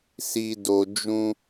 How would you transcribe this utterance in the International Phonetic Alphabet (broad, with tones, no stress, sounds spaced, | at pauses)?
s i˨ d o˨ d͡ʒ ũ˧